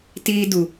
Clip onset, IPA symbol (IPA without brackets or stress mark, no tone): t